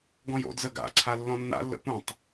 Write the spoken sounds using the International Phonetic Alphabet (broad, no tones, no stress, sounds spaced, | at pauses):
ɡ ɔ̃ j o̰ d z ə ɡ a̰ ǀʰ a lː ɔ̃ nː a̰ lː ə̰ p ũ tˤ